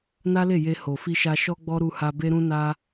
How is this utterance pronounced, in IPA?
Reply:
n a˦ l e˦˨ j e˧ h o˨ f i˧ ʃ a˧ ʃ ɔ˦ ɡ͡b ɔ˦ ɾ u˧ h a˧ b e˦ ɾ ũ˦ n a˦

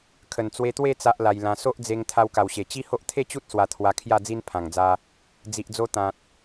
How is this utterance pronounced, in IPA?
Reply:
kʰ ə˨˩ n t͡s w e˧ t̪ w e˥˧ t͡s a˦ ʔ l a˧ j l ã˧ s o˦ ʔ d͡z e˧ ŋ t̪ʰ a˧ w k a˨˩ w ɕ e˨˩ t͡ɕ i˦ h o˦ ʔ t̪ʰ e˥˧ t͡ɕ u˦ t̚ s w a˧ t̪ʰ w a˧ kʰ j a˥˧ d͡z i˦ n pʰ ã˨˩ ŋ d͡z a˧ | d͡z i˨ ʔ d͡z o˧ t̪ ã˨ t̚

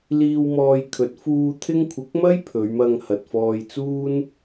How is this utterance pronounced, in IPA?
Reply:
l iː˧ w m ɔː˧ j kʰ ɵ˨˥ t̚ f uː˧ t̪ʰ ɪ˥ ŋ kʷʰ ɪ˨˥ k̚ m ɐ˥ j pʰ ɵ˨˧ ɥ m ɐ˧ ŋ h ɐ˨ t̚ f ɔː˧ j t͡s uː˥ n

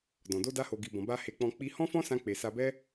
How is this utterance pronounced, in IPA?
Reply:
d ɔ̃˨ d o˧ d a˧ h o˨ ɡ i˨ b ɔ̃˨ b a˧ h e˧ k͡p ɔ̃˧ k͡p i˧ h ɔ̃˦ f ɔ̃˦ s ã˧ k͡p e˨ s a˧ b ɛ˦

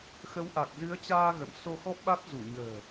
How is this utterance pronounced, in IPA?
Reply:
x ə˨˦ w ʔ a˨˩ k̚ z ɨ˨˦ ə̯ t͡ɕ aː˧ ɣ ə̰˧˨ m s o˧ x ɔ˦˥ p̚ ɓ a˦˥ t̚ z u˧˩ ɲ ə̤ː˨˩

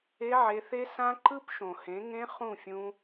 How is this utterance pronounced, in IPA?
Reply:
e˧ ʕ e˧ θ e˦ s ã˦ ǃ ɯ˦ p ʃ õ˨ h ẽ˨˦ ŋ ẽ˧ χ ũ˦˨ fʲ ũ˧

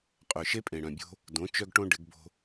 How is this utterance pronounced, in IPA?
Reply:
qʼ œ˨ ʃ e˦ pʼ ẽ˨ ɽ œ̃˨ bʲ o̤˦ | d õ˨˥ t͡ʃ œ˦ ɡ ʈ õ˦ ɖ ɪ˨˥ ɡ b o̤˦

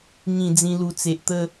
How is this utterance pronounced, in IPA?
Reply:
ŋ ĩ˨˩ d͡z ĩ˧ l u˨˩ t͡s e˨ ʔ t̪ ə˥˧

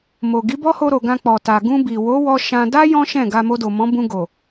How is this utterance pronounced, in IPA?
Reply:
m o˨ ɡ i˨˦ b ɔ˦ h o˧ ɾ o˨ ɡ ã˧ k͡p ɔ˨ t a˨ ɡ ũ˧ b i˨ w o˨˦ w ɔ˧ ʃ ã˧ d a˦ j ɔ̃˦ ʃ ɛ̃˦˨ ɡ a˧ m o˧ d o˨ m ɔ̃˨˦ b ũ˧ ɡ o˨

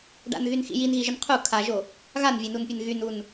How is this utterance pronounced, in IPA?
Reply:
ɖ a̰ n ɣ y n x ḭ j i n ɣ i ʒ ə n qʰ u kʰ a ʒ o | ɣ a n vʲ e n u n pʲ e n ɣ y n u n

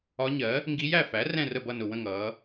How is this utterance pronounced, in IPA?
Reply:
ɒ˧˥ ɲ ɜ˩˥ | ŋ ɡ i˧˥ j æ˥˨ f æ˩˥ r ɛ̃˥˨ r ə˥˨ b ʌ˥˨ n ʊ˨˩ w ə̃˥˨ ŋ ʌː˩˧

